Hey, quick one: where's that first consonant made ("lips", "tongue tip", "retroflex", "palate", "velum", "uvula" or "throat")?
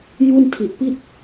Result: palate